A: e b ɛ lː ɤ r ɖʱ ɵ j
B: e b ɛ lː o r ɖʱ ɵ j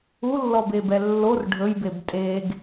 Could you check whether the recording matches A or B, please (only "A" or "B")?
B